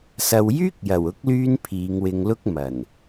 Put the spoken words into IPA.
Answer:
sɐ˨w jyː˥k̚jɐ˨˩wʊ˨˥k̚lyː˧n pʰiː˨˧ŋwɪ˧ŋlʊ˥k̚ mɐ˨˩n

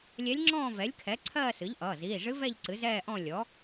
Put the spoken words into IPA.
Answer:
lʲɛ˧˥lʲŋ͡ǁɔ̃ː˥˧ vɛ˩˥lʲkʰɛ˩˥ ǀʰɜː˥˧sɨ˩˥ʎʔʌː˩˧˩ ziː˩˧˩ʐɨ˧˥vɛ˥˧ʎ ǀɨ˩˥zɛː˥˧ʔɔ̃˥˧ lʲɔ˩˥

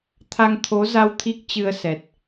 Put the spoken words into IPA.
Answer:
t̪ʰa˧ŋt̪ʰo˨˦za˧w t̪ʰi˦˥k̚t͡ɕɨ˧ə̯sɛ˨˩t̚

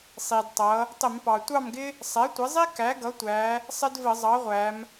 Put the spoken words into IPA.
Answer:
sˤi˩dtˤʌ˩˧ | tˤɪ˧˩˧mpɑ˩tʷɑ˥˨mɡɪ˥ | sˤɛ˩˥tʷɪ˩˥zˤi˥ kæ˩˥ɡʌ˩˥tʷæ˩˧ | sˤɪ˥dvə˧˩˧zˤɑ˩˥ʁʷæ˩˧m

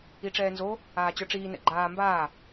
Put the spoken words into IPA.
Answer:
iʈ͡ʂɛːnzo | aːt͡ɕə˞ʈ͡ʂiː nɛ̰ɡ͡ǃaː mbaː

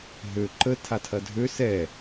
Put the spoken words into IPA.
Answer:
ɦø ǃə tʰatʰɐdʱø sɛ

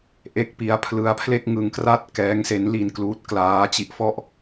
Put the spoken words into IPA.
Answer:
ʔe˦˥k̚pi˦˥a̯ pʰlɯ˦˥a̯pʰle˥˩k̚ ŋɯ˧ŋkra˥˩t̚ kɛː˦˥ŋse˦˥nli˧nkluː˦˥t̚ klaː˦˥t͡ɕi˦˥ʔ fɔ˥˩ʔ

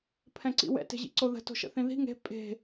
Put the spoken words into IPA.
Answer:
pʰɛ̃ǀḭwɛ̰t e̤ʑḭǀoðə̤ to̤ʃə̰θĩði̤ ŋe̤ pʼe̤

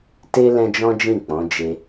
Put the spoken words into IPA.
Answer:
te˦ lɛ̃˧ d͡ʒɔ̃˦ d͡ʒĩ˦˨k͡pɔ̃˨˦ d͡ʒe˧

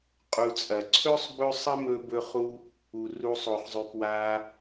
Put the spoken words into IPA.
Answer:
qʼu˨t͡sʼɐ˩ǀʰɵ˥sˤbɵ˦ sˤɐ˦mɵ˨bɵ˨χu˨ | u˩ru˨sˤo˩χzˤʉ˩ pwa˨

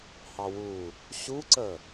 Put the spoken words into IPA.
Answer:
hɑwu | ɕuǀə

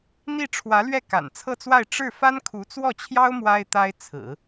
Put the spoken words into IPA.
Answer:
n̪i˥˩ʈ͡ʂʰwä˧˥lɥɛ˥˩ ka̰˨˩nt͡sʰɤ˥˧t͡swa˥˧ɪ̯ ʈ͡ʂɻ̩˥˩ fa˥nkʰu˧˥t͡swɔ˥˩t͡ɕʰjɑ˥ʊ̯ mwa˥ɪ̯t̪a˥ɪ̯t͡sʰɹ̩˨˩˦

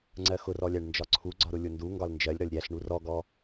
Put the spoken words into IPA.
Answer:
ŋ͡ǀɜxʊrɔlʲæɳ nd͡ʒɒǀʰuɡ͡ǀɒɾʊ lʲʊndu ŋɡɒlnd͡ʒɜlʲ ɾɒlʲɾʲæɬɳu rɔɡɔ

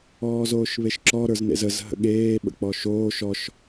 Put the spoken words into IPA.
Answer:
ɔːzoːʃβeʃǁɔ ɾə˞znḛzəz ɦə̰ɠeː ɓə̰k͡pɔʃoː ʃɔʃ

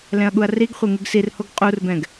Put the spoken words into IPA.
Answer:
lɛ̃ɐ̯ɠuɐ̯riɡχʷe ŋɯɡsirhoɡ qʼurbɛ̃ɡ

